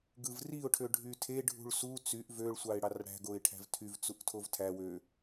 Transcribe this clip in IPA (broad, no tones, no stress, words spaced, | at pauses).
ɡɯvriʊ̯ʈʰø ɖʱytʰe ɖʱṳɭsu t͡syʔ vøɭsʷɑɪ̯ ɽɑrɽæ̤ ɡoɪ̯ʈʰæ̤vtʰyv t͡suʔtʰovtʰæ wø